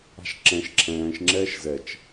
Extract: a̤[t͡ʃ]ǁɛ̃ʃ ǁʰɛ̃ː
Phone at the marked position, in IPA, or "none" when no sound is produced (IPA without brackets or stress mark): ʃ